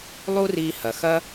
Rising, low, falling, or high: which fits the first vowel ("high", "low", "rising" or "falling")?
high